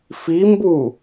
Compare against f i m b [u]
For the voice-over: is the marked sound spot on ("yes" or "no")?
yes